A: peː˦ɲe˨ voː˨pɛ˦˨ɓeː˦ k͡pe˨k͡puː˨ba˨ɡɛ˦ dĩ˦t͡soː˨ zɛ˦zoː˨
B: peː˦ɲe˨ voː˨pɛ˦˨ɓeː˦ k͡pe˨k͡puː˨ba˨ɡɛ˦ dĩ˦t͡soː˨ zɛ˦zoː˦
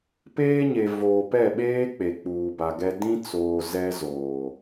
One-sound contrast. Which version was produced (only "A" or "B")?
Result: A